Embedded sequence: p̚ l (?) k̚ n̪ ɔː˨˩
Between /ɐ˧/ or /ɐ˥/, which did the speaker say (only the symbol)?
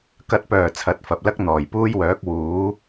ɐ˥